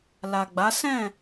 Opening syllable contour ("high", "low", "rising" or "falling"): low